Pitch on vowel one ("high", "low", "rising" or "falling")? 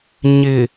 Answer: low